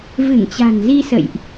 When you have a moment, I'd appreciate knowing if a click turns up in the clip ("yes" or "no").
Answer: no